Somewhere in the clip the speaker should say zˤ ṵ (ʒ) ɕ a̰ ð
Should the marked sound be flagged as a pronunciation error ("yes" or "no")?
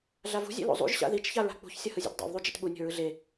no